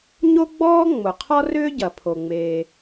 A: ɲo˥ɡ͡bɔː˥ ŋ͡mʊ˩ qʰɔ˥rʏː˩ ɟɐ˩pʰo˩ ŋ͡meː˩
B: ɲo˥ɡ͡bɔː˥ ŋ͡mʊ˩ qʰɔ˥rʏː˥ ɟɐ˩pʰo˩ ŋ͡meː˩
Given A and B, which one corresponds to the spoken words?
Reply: B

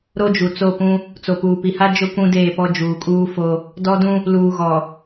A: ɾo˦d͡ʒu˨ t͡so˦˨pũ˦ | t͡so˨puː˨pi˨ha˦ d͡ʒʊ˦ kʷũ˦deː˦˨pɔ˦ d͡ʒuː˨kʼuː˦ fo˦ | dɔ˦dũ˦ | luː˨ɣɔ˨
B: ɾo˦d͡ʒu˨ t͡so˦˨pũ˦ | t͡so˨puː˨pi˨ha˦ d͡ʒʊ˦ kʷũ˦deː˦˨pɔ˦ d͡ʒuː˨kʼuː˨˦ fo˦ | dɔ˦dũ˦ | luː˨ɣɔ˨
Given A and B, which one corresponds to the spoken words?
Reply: A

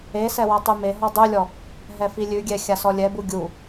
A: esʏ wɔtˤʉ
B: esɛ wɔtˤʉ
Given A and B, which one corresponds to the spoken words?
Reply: B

